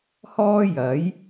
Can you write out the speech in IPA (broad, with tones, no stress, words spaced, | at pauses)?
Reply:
hɔː˥jɐ˨˥j